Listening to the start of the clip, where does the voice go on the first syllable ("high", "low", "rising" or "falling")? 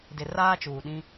low